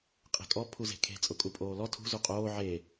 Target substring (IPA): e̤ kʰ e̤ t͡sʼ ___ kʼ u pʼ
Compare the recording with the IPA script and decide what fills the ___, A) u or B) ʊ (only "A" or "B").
B